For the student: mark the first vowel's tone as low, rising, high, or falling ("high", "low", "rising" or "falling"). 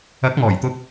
rising